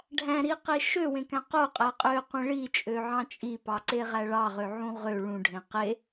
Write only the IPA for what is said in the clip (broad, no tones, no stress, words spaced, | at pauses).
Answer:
ɖʱæ̃ɾiqe ʃøwẽkæ̃ qoqʼæ qʼøqʷẽ ɭit͡ʃʼøʕɑ̃ t͡ʃʼipɑǀeʁæ ɭɑʁøʕũ ʁø ɭũɖʱẽ qe